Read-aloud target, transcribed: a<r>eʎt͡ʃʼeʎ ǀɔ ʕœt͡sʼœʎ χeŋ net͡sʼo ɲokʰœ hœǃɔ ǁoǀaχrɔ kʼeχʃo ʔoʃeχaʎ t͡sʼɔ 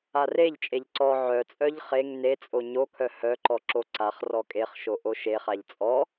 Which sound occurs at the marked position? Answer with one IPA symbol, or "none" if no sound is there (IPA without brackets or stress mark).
r